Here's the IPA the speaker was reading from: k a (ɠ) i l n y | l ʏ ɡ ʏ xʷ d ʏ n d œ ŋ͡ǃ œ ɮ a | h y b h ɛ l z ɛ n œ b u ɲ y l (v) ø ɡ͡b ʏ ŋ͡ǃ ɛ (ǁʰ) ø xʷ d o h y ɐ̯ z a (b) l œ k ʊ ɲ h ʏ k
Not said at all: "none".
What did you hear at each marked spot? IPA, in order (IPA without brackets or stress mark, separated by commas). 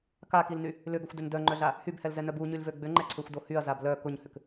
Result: k, v, ǀʰ, b